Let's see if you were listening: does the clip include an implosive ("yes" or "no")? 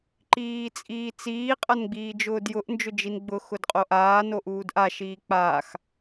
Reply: no